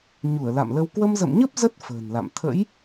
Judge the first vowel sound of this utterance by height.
high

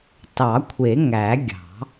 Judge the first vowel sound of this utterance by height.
low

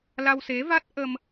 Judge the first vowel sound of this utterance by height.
low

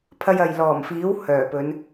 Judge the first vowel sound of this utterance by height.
low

